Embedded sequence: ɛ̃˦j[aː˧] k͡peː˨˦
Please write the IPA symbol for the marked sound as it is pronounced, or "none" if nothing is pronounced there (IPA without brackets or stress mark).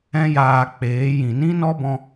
aː˧